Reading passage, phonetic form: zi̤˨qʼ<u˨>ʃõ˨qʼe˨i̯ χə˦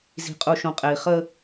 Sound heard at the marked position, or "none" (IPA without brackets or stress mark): u˨